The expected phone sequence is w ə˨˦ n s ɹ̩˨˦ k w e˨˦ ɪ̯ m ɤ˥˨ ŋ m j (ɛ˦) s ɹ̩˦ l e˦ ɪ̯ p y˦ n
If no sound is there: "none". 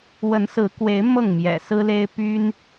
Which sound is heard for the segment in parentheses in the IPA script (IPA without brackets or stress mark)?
ɛ̰˨˩